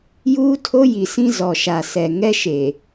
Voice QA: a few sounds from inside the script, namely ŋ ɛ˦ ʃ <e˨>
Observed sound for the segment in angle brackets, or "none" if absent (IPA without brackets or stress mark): e˨